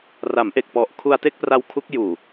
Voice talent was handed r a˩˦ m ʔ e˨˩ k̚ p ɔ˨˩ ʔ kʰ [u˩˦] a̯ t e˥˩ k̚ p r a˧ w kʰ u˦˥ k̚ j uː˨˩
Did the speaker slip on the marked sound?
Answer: yes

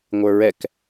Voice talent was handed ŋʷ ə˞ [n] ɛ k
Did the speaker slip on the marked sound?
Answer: yes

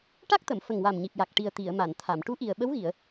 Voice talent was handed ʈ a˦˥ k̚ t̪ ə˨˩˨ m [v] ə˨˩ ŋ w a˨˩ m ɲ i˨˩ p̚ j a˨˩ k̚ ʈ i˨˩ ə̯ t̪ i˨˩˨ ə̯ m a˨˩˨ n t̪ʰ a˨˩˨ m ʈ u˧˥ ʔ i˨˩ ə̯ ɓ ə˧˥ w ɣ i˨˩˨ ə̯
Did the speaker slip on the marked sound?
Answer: yes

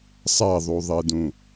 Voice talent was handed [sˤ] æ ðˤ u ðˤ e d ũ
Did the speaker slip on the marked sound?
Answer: no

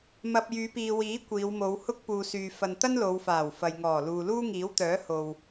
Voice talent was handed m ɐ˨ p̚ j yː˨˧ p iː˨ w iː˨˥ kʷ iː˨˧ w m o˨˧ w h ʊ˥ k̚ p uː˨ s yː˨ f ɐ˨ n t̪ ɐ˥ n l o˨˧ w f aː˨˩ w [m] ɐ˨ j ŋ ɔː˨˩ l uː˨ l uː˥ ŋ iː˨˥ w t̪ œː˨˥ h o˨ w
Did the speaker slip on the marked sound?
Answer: yes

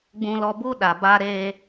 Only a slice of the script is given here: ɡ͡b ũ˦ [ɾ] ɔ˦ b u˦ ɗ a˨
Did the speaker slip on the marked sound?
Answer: yes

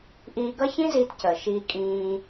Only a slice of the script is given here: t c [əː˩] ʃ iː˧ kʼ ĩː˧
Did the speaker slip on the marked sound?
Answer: no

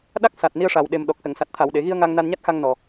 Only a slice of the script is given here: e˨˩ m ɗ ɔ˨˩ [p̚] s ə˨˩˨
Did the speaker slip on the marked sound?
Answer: yes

